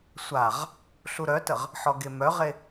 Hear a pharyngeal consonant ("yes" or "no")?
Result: yes